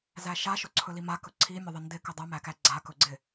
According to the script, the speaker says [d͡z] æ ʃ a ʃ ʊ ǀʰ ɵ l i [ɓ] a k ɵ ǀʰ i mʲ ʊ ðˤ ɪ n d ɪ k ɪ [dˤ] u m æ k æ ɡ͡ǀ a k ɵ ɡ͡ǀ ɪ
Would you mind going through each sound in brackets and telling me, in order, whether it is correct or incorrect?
incorrect, incorrect, correct

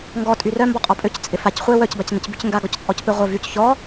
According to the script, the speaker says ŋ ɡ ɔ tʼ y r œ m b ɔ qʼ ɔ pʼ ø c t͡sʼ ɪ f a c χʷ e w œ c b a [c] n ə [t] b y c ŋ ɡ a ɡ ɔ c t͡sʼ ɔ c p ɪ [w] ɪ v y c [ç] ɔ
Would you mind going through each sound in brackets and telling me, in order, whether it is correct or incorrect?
correct, incorrect, incorrect, correct

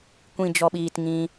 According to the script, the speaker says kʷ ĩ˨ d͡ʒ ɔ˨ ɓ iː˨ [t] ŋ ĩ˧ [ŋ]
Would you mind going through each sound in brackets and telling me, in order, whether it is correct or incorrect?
correct, incorrect

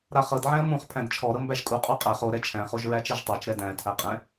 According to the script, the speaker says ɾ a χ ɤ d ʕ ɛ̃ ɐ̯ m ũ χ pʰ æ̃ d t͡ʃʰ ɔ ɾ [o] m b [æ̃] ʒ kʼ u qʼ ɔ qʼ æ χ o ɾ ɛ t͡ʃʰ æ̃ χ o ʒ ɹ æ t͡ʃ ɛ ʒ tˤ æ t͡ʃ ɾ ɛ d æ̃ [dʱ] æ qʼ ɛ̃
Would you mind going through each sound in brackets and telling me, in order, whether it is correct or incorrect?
incorrect, incorrect, incorrect

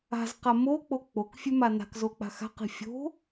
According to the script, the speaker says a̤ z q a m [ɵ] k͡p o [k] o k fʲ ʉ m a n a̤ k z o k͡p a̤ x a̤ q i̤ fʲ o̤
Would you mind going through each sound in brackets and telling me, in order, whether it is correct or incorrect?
incorrect, incorrect

